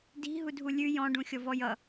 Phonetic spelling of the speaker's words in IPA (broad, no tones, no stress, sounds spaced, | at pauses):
d i̤ ɦ u dʱ u lʲ ʉ j ɔ̃ ɖ ũ xʲ ɔ v ɔ j ʌ